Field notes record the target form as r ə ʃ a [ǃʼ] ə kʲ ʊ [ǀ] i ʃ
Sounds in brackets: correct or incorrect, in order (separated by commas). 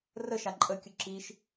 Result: correct, incorrect